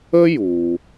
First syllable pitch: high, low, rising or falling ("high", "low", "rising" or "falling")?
high